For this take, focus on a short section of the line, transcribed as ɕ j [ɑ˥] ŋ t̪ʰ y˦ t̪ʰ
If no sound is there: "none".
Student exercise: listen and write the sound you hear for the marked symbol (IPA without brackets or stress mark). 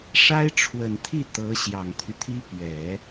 ɑ˨˩